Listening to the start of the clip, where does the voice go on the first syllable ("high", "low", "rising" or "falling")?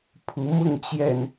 rising